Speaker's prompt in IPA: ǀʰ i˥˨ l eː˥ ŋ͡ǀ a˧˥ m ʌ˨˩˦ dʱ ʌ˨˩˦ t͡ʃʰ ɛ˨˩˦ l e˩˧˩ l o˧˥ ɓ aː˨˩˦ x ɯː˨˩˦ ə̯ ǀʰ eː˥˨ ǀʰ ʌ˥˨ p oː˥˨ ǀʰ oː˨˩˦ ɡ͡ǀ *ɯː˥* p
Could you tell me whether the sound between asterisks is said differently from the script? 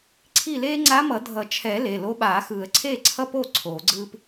no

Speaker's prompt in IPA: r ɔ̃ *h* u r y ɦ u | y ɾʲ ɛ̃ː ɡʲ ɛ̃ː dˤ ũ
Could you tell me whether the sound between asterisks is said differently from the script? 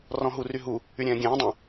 yes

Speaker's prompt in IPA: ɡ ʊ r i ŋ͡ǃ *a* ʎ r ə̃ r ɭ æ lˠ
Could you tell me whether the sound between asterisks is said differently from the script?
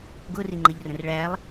yes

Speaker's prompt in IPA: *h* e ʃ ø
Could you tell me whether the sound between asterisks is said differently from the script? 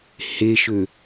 no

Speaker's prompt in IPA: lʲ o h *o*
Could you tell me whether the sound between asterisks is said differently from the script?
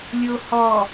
yes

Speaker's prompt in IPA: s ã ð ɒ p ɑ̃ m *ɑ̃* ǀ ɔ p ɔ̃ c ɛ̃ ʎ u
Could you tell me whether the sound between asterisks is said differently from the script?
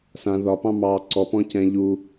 yes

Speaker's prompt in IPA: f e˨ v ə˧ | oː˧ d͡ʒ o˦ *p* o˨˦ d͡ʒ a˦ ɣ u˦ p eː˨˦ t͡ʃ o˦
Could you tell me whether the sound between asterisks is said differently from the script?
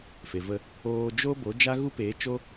yes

